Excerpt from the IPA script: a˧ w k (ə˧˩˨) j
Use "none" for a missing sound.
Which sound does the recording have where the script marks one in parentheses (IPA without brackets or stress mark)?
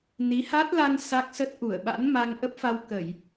ə˧˩˨